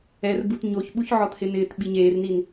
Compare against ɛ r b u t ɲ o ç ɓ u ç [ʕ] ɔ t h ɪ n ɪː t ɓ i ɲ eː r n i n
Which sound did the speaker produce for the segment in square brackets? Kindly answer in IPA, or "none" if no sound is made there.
ʕ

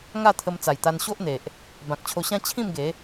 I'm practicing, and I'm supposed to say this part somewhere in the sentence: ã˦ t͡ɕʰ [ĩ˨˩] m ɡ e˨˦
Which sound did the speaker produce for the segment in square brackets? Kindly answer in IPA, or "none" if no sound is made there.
ĩ˥˧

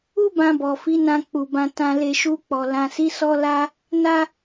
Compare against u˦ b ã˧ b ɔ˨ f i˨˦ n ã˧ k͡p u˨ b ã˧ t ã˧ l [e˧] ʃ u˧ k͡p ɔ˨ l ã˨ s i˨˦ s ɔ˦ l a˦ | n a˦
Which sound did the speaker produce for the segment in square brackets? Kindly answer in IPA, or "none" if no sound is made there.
e˧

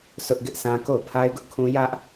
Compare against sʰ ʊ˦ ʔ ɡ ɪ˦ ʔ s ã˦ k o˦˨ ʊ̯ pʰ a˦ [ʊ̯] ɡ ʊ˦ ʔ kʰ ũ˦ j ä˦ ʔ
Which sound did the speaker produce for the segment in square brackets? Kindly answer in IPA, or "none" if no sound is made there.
ɪ̯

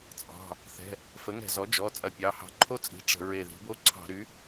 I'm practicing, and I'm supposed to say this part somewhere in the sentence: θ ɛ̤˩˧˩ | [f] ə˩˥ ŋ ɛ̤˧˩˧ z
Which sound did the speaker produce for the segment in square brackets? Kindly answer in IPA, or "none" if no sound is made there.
f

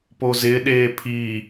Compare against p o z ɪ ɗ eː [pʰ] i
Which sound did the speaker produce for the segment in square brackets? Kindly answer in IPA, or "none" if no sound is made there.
pʰ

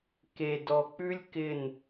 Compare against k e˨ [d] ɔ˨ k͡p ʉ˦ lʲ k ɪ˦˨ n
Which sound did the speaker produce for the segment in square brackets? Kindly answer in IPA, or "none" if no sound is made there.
d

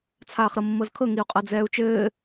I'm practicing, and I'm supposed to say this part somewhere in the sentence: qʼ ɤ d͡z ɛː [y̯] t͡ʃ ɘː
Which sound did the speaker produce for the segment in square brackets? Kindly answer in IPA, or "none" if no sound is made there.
u̯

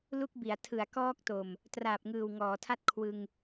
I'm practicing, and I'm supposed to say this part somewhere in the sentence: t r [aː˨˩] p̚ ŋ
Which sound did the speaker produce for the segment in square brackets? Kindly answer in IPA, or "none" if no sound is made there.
aː˨˩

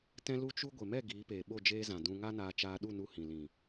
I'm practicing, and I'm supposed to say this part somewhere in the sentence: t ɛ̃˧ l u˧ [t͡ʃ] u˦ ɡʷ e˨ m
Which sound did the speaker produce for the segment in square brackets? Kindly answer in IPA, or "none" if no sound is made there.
t͡ʃ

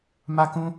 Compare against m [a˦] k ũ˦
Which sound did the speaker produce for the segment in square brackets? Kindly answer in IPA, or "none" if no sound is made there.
a˦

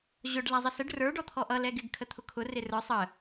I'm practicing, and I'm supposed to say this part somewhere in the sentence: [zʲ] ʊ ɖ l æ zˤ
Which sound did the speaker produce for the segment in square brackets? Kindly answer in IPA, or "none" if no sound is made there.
ʑ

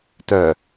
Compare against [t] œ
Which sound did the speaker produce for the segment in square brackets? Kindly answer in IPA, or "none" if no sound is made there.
t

